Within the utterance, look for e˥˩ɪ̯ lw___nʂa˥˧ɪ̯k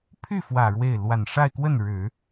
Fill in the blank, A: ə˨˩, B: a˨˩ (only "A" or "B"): B